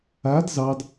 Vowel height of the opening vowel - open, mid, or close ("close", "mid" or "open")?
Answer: open